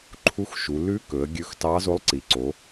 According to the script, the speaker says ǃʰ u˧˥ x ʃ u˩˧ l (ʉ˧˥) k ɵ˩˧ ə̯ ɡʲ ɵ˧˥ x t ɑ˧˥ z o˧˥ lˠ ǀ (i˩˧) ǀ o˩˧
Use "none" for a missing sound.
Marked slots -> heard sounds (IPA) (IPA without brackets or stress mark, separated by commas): ʉ˧˥, i˩˧